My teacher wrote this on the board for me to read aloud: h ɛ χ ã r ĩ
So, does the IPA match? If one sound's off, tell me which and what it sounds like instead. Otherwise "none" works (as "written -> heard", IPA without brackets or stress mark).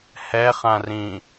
none